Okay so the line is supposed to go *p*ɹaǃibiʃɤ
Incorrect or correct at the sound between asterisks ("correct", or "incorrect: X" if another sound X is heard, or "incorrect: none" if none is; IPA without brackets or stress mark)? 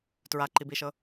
incorrect: t